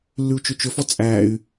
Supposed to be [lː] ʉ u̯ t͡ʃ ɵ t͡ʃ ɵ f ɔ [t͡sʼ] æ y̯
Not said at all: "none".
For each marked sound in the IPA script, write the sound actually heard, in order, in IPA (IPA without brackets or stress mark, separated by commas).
lː, t͡sʼ